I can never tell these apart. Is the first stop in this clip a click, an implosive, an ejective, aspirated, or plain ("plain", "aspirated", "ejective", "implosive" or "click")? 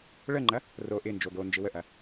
click